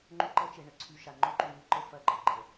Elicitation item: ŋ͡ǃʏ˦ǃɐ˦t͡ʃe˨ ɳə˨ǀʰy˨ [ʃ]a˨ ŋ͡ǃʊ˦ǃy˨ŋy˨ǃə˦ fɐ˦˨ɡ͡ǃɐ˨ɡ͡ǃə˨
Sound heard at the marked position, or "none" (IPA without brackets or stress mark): ʃ